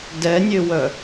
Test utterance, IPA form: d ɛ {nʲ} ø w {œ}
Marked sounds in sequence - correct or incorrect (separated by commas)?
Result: correct, correct